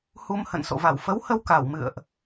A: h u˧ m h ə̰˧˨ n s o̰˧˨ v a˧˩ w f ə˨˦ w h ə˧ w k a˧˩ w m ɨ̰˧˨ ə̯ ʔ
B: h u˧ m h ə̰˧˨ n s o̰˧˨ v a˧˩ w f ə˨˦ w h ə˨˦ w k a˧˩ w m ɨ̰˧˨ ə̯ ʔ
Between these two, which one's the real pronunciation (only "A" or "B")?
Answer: A